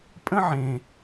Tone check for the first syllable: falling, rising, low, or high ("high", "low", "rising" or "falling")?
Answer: high